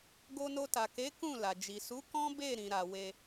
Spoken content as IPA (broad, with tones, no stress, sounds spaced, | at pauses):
ɡ o˧ n o˧ t a˨ k e˨˦ k ũ˦˨ l a˨ d͡ʒ i˨ s u˨˦ k ɔ̃˦ b e˦˨ ɾ ĩ˨ ɾ a˨ w e˧